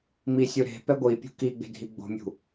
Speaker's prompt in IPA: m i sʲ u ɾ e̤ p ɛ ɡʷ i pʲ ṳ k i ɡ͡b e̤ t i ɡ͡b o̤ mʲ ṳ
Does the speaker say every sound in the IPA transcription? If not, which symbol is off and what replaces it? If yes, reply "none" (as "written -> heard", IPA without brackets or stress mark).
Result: t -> dʱ